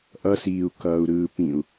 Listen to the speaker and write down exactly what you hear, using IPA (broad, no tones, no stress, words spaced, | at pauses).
ʔʌsiːu̯ kʌːu̯ɾɯːpĩu̯